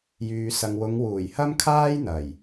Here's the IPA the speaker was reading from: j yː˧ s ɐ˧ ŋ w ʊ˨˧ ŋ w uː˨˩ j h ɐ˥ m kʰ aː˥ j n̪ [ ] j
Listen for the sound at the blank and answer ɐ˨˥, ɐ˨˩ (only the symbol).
ɐ˨˩